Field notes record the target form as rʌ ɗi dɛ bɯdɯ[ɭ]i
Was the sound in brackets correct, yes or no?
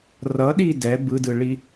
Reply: yes